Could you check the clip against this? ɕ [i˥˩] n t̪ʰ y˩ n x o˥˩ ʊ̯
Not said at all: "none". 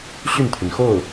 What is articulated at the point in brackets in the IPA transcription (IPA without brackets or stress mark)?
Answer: y˥˩